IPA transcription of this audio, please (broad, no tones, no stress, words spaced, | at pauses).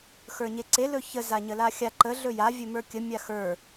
xə˞ɲeǀe lɵçə zaɲəlaxʲa ǃə ɮɵja vʲɵmə˞kʲə mʲaxə˞